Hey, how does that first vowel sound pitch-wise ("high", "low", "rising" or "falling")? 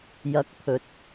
rising